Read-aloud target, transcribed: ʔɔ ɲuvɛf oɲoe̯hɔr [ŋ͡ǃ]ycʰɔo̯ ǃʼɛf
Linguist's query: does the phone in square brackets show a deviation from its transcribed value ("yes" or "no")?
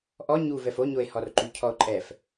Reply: yes